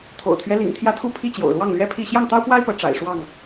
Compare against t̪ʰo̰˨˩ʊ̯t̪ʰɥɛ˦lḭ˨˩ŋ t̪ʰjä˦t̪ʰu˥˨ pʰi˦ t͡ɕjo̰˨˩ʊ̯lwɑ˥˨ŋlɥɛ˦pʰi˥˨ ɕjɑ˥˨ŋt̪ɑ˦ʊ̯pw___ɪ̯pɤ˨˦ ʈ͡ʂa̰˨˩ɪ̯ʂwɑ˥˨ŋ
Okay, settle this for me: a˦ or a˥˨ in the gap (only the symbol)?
a˦